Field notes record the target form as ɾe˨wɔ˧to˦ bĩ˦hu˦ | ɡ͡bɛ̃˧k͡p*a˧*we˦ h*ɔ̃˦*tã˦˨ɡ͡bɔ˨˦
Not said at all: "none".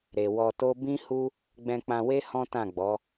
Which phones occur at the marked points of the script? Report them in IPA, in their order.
ã˧, ɔ̃˦

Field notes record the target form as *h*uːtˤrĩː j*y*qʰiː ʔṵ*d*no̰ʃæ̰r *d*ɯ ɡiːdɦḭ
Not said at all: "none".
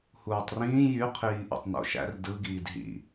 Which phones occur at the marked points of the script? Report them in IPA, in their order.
h, y, tˤ, d

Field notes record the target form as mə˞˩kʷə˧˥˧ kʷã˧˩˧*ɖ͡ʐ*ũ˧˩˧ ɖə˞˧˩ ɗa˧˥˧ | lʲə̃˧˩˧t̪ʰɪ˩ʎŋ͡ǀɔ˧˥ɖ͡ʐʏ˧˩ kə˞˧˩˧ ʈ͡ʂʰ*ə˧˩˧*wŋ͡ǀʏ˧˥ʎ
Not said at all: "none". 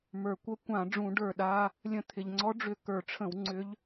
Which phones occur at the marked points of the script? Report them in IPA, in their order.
ɖ͡ʐ, ə̃˧˩˧

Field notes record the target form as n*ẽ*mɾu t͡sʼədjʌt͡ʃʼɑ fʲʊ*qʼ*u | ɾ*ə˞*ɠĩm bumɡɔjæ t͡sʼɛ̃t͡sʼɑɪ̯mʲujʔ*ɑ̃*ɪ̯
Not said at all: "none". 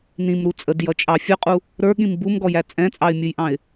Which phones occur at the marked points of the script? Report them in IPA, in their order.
ĩ, qʼ, ə˞, ɑ̃

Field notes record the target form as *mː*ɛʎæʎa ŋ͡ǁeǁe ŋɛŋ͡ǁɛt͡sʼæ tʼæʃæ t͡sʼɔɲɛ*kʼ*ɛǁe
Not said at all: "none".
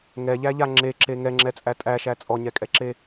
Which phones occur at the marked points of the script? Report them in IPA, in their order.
ŋ, kʼ

